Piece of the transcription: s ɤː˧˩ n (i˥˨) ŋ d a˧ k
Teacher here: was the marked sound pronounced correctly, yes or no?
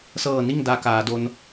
yes